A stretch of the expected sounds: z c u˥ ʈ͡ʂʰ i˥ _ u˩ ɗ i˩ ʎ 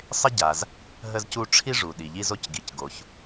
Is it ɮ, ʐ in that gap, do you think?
ʐ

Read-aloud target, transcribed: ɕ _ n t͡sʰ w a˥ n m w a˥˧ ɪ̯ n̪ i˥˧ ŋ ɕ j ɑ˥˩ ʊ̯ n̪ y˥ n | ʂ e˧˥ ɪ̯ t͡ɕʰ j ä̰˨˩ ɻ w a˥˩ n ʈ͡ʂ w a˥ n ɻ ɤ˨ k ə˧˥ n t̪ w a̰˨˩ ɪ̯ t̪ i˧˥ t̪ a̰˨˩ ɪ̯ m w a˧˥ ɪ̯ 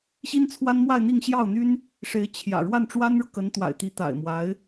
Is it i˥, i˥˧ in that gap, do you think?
i˥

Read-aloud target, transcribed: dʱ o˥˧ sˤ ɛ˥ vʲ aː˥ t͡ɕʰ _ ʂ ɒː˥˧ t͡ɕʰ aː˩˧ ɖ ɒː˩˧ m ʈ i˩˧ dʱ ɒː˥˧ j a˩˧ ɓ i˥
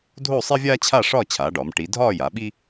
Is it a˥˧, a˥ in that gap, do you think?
a˥˧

